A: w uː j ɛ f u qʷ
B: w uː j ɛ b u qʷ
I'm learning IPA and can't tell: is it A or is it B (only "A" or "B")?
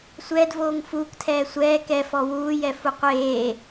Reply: A